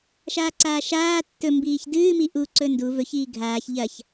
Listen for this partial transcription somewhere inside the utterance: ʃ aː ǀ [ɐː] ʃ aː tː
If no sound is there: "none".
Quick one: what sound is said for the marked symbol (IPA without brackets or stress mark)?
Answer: aː